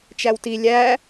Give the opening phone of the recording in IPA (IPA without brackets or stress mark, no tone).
t͡ʃ